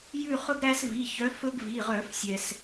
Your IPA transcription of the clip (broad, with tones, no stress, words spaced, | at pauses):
jʉ˦˨χɵ˦ɡɾæ˦svi˩˧˩ çœ˨˦fɵ˦ɡ vi˩˧˩ʁœ˧˩˧fsʲɛ˩s